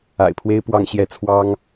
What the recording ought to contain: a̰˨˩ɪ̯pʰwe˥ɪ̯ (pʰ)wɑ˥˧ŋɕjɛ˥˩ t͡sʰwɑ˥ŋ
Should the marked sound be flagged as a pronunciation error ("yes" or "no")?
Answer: yes